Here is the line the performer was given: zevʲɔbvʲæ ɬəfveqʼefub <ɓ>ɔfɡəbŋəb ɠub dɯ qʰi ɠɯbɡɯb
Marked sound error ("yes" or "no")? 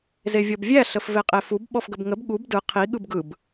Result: no